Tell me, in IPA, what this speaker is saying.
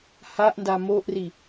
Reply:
h a ʔ n d a m o ʔ r i

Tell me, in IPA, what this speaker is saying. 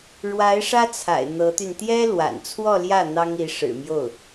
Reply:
ɻ w a˧˥ ɪ̯ ʂ ä˥ t͡sʰ a̰˨˩ ɪ̯ n̪ ɤ˧˥ t̪ y˧ n t̪ j ɛ˥ l w a̰˨˩ n t͡sʰ w ɔ˥˧ l j ä˥˩ n̪ ɑ˥ ŋ i˧˥ ʂ ɻ̩˨˩ m j o˥˩ ʊ̯

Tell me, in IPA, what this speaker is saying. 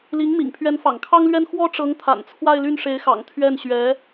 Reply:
l i˧˥ ŋ m ḭ˨˩ ŋ pʰ ɥ ɛ˧˥ n f ɑ̰˨˩ ŋ kʰ ɑ˥ ŋ l ɥ ɛ˥ n x w ɔ˥ ʈ͡ʂ ɤ˧˥ ŋ t̪ʰ a̰˨˩ n t͡sʰ w a˥˧ ɪ̯ l y˥˩ n ʂ e˧˥ ɪ̯ x ɑ̰˨˩ ŋ t̪ʰ ɥ ɛ˥˩ n ɕ ɥ ɛ˧˥

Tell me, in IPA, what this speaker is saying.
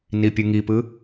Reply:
n i pʲ ɯ ŋ i p ɯ

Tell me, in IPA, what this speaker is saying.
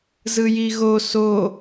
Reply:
z ɯ j i ɣ o s o

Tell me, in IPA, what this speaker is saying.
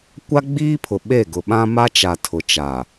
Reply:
kʷ a˦ ɡ͡b iː˦ pʰ ʊ˨ ɓ e˦˨ ɡ ʊ˨ ɓ ã˦ m a˦ t͡ʃ a˨ tʰ ʊ˨ t͡ʃ a˨

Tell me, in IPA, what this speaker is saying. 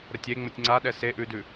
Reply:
ɾ ə tʲ e ŋ͡m ə tʲ ŋ͡ǀ a ɗ ɛ s e ʔ ʉ d ʉ

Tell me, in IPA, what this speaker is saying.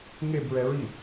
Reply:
ŋ e b ɹ ɛ ɹ i

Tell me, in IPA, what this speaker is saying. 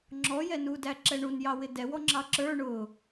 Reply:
ŋ͡ǁ ɔ j ɛ n u d æ ǁ ɛ ɳ u n j ɑ w ɪ d ɛ w ɔ ŋ͡ǁ ɑ ǁ ə˞ ɳ ʊ

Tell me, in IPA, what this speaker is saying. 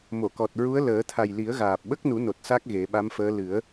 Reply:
m o˨˩˨ k ɔ˨˩ t̚ ɹ u˧˥ ə̯ l əː˨˩˦ t̪ʰ a˨˩ j l i˨˩˦ ə̯ ɣ aː˨˩ p̚ ɓ ə˦˥ k̚ n u˨˩˦ n o˨˩ t̚ s a˦˥ k̚ ɣ e˨˩˦ ɓ a˧˥ m f əː˧˥ l ɨ˨˩˦ ə̯

